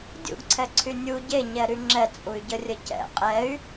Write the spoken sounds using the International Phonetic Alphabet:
dʲ ṵ ɡ ǀʰ ɛ ǀʰ y nʲ u ɟ e ɲ ɛ ɾ y ŋ͡ǁ ɛ t͡sʼ u y̯ ɟ ə rʲ ə c ɛ̰ qʼ ɛ y̯

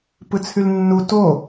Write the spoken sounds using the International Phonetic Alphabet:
p ɯ t͡sʰ y l nː u t o

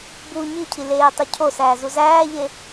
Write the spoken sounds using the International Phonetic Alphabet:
b u ɲ i cʰ i l eː tˤ o cʰ o s æː z u z æː ʎ e

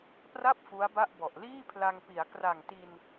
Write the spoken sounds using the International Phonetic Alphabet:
p r a˥˩ p̚ f u˦˥ a̯ b a˥˩ ʔ b ɔ˨˩ ʔ l iː˥˩ pʰ l a˧ ŋ p i˩˦ a̯ k r a˨˩ ŋ t i˧ n

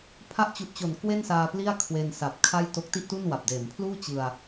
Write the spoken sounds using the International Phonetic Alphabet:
pʰ a˦˥ ʔ t͡ɕ u˨˩ ʔ t͡ɕ o˩˦ n k w e˥˩ n s aː˧ p l i˥˩ a̯ kʰ w e˧ n s a˨˩ p̚ kʰ a˥˩ j t o˦˥ k̚ t i˥˩ ʔ t u˥˩ n w a˨˩ p̚ d eː˩˦ m pʰ l uː˥˩ t͡ɕ ɯ˧ a̯

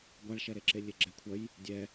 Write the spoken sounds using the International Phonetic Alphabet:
ɡʷ a ɭ ʃ ɛ ɾ e ǁ e lʲ e ɡ͡ǁ ɛ kʷʰ ɐ j | dʲ ɛ

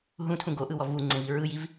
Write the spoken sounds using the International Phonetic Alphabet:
ɦ ũ tʰ ũ ɡ o ʔ ɯ w ɔ v u ŋ͡ǀ ẽ v i ɹ ɯ j i v

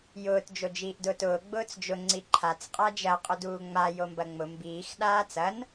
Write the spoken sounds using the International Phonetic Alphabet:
j ʊː t d͡ʒ o d͡ʒ iː ʔ d ʊː t ʊː ɡ͡b ʊː t͡s d͡ʒ ʊ ŋ͡ǀ i ǃʰ a t͡s qʼ a d͡ʒ ɐ qʼ ʊ d uː ŋ͡m a j o m b ɐ ŋ͡m ʊ m b iː x ɗ aː t͡s ɐ n

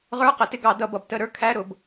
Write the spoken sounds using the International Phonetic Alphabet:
ʁ ə˞˧˥˧ q ə˩˧ t ɪ˦˨ ɡ ɑ˧˩˧ d ʌ˧˩˧ b ʌ˩˧ b t ə˧˩˧ ɾ ə˞˧˥ kʰ æ˧˥˧ ɾ ʊ˩˧ b

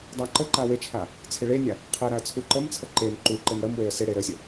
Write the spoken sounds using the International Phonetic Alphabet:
dˤ a ǃ ə ǃ a w e t͡ʃʰ a | t͡sʰ ɪ ɭ e nʲ a | qʰ e ɾ a ə̯ t͡sʰ u ǃ ə m t͡sʰ ə ǃ e n ǃ u ǃ e n ɽ ə m w e ə̯ s ɪ ɽ e ɾ ə sʲ ə

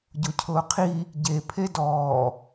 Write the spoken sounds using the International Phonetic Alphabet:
ɟ o cʰ ʊː qʰ i | ɟ e pʰ e d ɔː

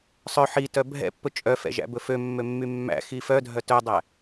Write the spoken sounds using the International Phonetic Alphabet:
sˤ œ ħ i t œ bʱ ɛ̰ pː ɵ t͡ʃʼ œ f ɛ̰ ʒ æ̰ b ɵ f ø mː ø mː y mː æ̰ x i f œ dʱ œ t œ dˤ æ

